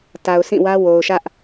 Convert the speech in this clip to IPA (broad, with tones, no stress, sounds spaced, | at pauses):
t a˨ ʊ̯ sʰ ĩ˦˨ w ä˦ w o˨ ʊ̯ ʃ ä˦ ʔ